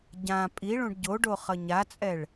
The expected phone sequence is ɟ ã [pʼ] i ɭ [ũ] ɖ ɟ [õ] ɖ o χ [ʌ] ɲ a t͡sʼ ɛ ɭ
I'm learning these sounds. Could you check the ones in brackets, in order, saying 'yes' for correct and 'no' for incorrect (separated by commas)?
yes, yes, no, yes